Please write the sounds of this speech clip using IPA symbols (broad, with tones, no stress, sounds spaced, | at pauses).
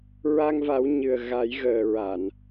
ɹ a˧ ŋ v a˨˩˦ w ɲ ɨ˨˩ ə̯ ɣ a˨˩˦ j ɣ əː˨˩ ɹ a˨˩˨ n